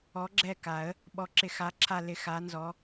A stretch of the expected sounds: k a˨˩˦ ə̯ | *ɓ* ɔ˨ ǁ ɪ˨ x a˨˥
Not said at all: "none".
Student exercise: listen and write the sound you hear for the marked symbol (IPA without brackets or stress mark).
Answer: ɓ